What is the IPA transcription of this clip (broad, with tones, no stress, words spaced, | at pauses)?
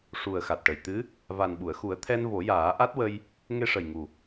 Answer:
ʂu˨˩ə̯xa˨˩t̚ʈə˨˩j t̪ɨ˧˥ | va˨˩n ɓu˨˩˨ə̯xu˨˩˦ə̯ t̪ʰɛ˧nvo˨˩˦jaː˨˩˦ ʔa˦˥t̚wə˧j | ŋe˧ʂə˨˩jŋu˨˩